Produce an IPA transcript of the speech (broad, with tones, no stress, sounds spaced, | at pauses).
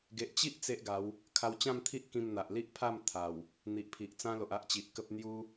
ɡ e˨ ʔ t͡ɕ i˦ ʔ t͡s e˦ ʔ ɡ a˨˦ w | kʰ a˧ w t͡ɕ ã˥˧ m t̪ʰ i˦ ʔ k ĩ˧ m n̪ a˨ ʔ l i˦ ʔ pʰ a˥˧ m t̪ʰ a˨˩ w | n̪ i˨ ʔ pʰ i˨ ʔ t͡s ã˦ l o˨ ʔ a˦ ʔ t͡ɕ i˨ ʔ k ə˦ p̚ n̪ j u˦